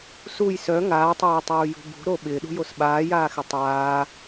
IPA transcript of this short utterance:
s u j s œ ŋ aː tˤ aː tˤ uː j ṳ b ṳ ɾ o ɓ ɪː ɗ ṳ j o s ɓ aː j aː x ɪ tˤ aː

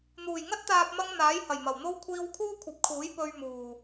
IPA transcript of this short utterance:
n̪ uː˨˩ j ŋ ɐ˥ t̚ t̪ aː˨ p̚ m ɐ˧ ŋ n̪ aː˨˥ j h ɐ˨˩ j m ɐ˨˩ w n̪ o˥ w kʷʰ iː˧ w kʰ uː˥ kʷʰ ɐ˨˥ p̚ kʰ uː˨˥ j p ɵ˧ ɥ m uː˨˩

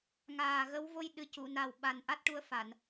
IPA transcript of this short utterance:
ŋ aː˨˩ ɣ ə˧˥ w v o˧ j ɗ ɨ˨˩ c u˨˩˨ n a˨˩ w ɓ a˨˩ n ʔ a˦˥ t̚ ʈ u˧ ə̯ f a˨˩˨ n

